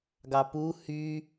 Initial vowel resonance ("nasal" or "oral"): oral